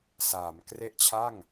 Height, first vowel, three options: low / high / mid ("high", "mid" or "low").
low